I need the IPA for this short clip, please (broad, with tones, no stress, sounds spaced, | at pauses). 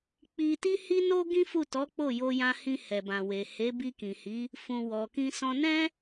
k͡p i˧ t i˧ h i˧ n o˧ ɡ ĩ˦ f u˦˨ t ɔ˨˦ k͡p o˦˨ j o˧ j ã˧ h ĩ˧ h ɛ˨ b ã˨ w e˨ h e˨˦ b i˧ k ĩ˨ h i˨˦ | f ũ˨ w ɔ˨ k ĩ˧ s ɔ̃˧ n ɛ̃˦